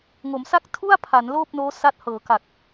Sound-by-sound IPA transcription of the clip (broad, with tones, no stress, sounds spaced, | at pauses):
ŋ o˩˦ m s a˥˩ k̚ tʰ u˥˩ a̯ pʰ a˩˦ n l oː˥˩ p̚ n oː˦˥ s a˦˥ t̚ h ɤː˩˦ k a˨˩ k̚